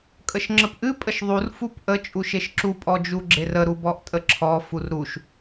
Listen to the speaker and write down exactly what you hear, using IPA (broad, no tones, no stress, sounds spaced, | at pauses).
kʼ ə ʃ ŋ͡ǁ ə p ʔ ɨ pʼ ə ʃ ðˤ u r f u p ʔ ə t͡ʃʼ u ʃ e ʃ ǁ u pʼ ɔ d͡ʒ u ɡ͡ǁ e r ə ɾ u b ɔ ʔ tʼ ə ǁʰ ɔ f u r ɾ u ʃ